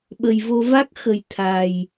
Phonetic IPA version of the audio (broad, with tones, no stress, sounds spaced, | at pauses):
ɓ ə˨˩ j v o˧ v a˦˥ k̚ x ə˨˩ j t̪ʰ a˨˩ j